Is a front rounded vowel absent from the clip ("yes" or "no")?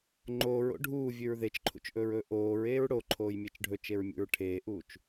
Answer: yes